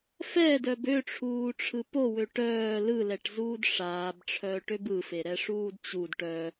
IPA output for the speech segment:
f ɛ d œ b ø ʈ͡ʂʰ uː ʈ͡ʂʰ ɯ p o w ø ʈ œː l ɯ l ɛ ʈ z uː d ʂ aː b ʈ͡ʂʰ œː ʈ ø b ɯ f e ɾ ɛ ʂ uː d t͡ɕ u d ʈ œ

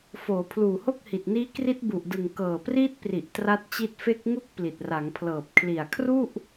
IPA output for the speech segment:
f oː˩˦ pʰ l uː˨˩ h o˥˩ k̚ h i˨˩ t̚ n iː˦˥ k r i˦˥ t̚ b u˨˩ ʔ d ɯ˨˩ ŋ k ɤː˨˩ p r iː˦˥ t̚ p r i˨˩ ʔ t r a˦˥ t̚ t͡ɕ i˦˥ t̚ f e˦˥ k̚ ŋ u˥˩ k̚ p l i˨˩ t̚ r a˩˦ ŋ pʰ l ɤː˨˩ p̚ kʰ l i˨˩ a̯ kʰ r u˥˩ ʔ

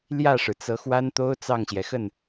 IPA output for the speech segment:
l j ä˥˩ ʂ ɻ̩˩ t͡s ɤ˧˥ x w a˥ n t̪ o˥ ʊ̯ t͡s ɑ˥˩ ŋ ɕ j ɛ˩ x ə˥˩ n

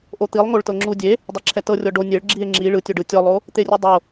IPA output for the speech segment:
ʔ o t̪ i lˠ ŋ o ɭ t ɤ ŋ͡ǁ u dʲ e | dˤ ɛ ǁʰ ɛ t ɤ rʲ ɔ ɖ o nʲ e ɭ ɡ͡ǁ i e̯ ŋ͡ǁ i ɭ ɯ tʲ o ɖ ɯ tʲ ɔ lˠ o | t̪ e rʲ o dˤ o

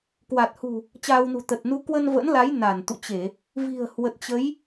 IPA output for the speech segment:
k w a˨˩ t̚ h ṳ˨˩ | t͡ɕ aː˧ w n ṳ˨˩ t̪ ə˨˩ t̚ n u˨˦ k w ə˧ n v ə̰˧˥ n l a˨˦ j n a˧˩ n t̪ ṵ˧˨ t͡ɕ e˧˩˨ | v i̤˨˩ ə̯ h w ə˨˩ t̚ t͡ɕ ə˨˦ j

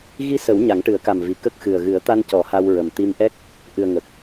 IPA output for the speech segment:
ɣ i˧˥ s ə˨˩˦ w ɲ a˨˩˦ ŋ ʈ ɨ˨˩˦ ə̯ k a˨˩ m v i˨˩˨ k ə˦˥ k̚ x ɨ˨˩ ə̯ ɣ ɨ˨˩˦ ə̯ t̪ a˧ n c ɔ˨˩˦ h a˧ w ɹ ə˨˩ m t̪ i˧ m ʔ ɛ˦˥ k̚ | ʔ ɨ˨˩ ə̯ ŋ ə˨˩ k̚

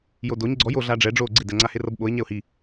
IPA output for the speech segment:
j o d o ɲ ɡ͡ǀ ɔ j o ɮ a ɖ͡ʐ ɛ ɖ͡ʐ o ɡ͡ǀ e d ɛ ŋ͡ǀ a h e r ɤ b ɓ o ɪ̯ ɲ ɛ ʊ̯ h i

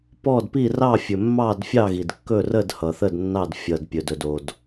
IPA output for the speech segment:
p ɔ˥˨ d p i˥˨ r ɑ˥˨ fʲ ɵ˩ mː ɑ˥˨ d fʲ ɑ˥˨ ɣ i˩ d kː ɵ˥˨ r ə˥˨ d h ʌ˩ θ ə˥˨ d nː ɑ˥˨ d fʲ ʌ˩ d pʲ ɵ˩ d ɵ˩ d o˩ d

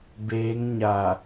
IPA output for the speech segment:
b eː˧˥ ŋ ɲ a˧˩

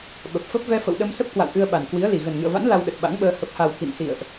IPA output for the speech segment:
ɓ ə˨˩ p̚ f ə˦˥ p̚ v ɛ˧ f ə̰˧˨ w ɗ ə˧ m s ə˦˥ p̚ k w a̰˧˨ w ʔ ɨ˧ ə̯ ɓ a˨˩ n k w i˨˦ ə̯ l i˨˩ ɣ ə˨˩ n ŋ ɨ̰˧˨ ə̯ v a̰˧˥ n l a˧ w ɗ ə˨˩ t̚ ɓ a̰˧˥ ŋ ɓ əː˧ h ə˨˩ p̚ h a˨˩ w k ḭ˧˨ n s ḭ˧˨ ə̯ ʔ

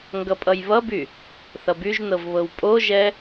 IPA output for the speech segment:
ŋ ɡ ʌ pʼ ʌ j β ʌ b y | θ ʌ b y ʒ n ɤ v β ɤ w pʼ o ʒ ɛ

